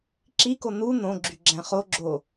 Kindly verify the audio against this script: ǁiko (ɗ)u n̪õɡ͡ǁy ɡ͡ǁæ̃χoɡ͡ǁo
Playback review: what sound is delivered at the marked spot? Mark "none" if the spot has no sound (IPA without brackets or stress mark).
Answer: n̪